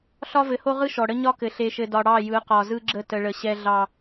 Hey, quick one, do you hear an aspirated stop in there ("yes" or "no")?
no